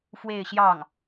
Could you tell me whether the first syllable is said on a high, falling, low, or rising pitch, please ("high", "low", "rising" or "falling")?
falling